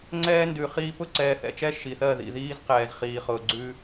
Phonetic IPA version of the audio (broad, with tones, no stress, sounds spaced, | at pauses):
ŋ͡ǀ ɛː˦ n d ʉ˨ χ iː˦ p ʊ˦˨ ǀ ɛː˨ θ ɛ̰˨ t͡ʃ ɛ˦ ʃ i˨ θ ɜ˦˨ ð ḭ˨ ð iː˦ z q ɛː˨ z χ iː˨ χ ʊː˨ ɡ͡ǀ ʉ˦